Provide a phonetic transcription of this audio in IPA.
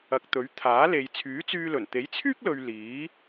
ɐ˨ k̚ t̪ ɵ˨˥ ɥ t̪ʰ aː˨˥ l e˨ j t͡sʰ yː˨˥ t͡s yː˧ l ɵ˨˩ n t̪ e˨˥ j t͡sʰ yː˥ k̚ l ɵ˨ ɥ l iː˨˥

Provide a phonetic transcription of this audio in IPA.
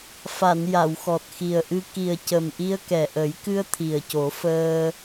f a˨˩˨ n j a˨˩˨ w x ɔ˨˩ t̚ x i˨˩ ə̯ ʔ ɨ˧ k i˨˩ ə̯ c ə˨˩ m ʔ i˧ ə̯ k ɛ˨˩ ʔ ə˨˩˦ j k ɨ˧ ə̯ t̪ʰ i˨˩ ə̯ c o˨˩˦ f əː˧

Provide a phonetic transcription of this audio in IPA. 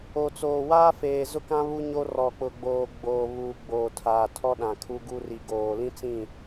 o˨ t͡s oː˨ w aː˦ f eː˨ z ʊ˦ k ã˦ β u˦ ɲ o˦ r ɔ˨ k͡p ʊ˨ ɡ͡b oː˨ ɡ͡b oː˨ β uː˨ ɡ͡b oː˨ tʰ aː˨ tʰ ɔ˦ ɗ ã˨ kʰ u˦ ɡ u˦ r i˨ ɡ oː˨ l ĩ˦ t͡s ĩ˦˨

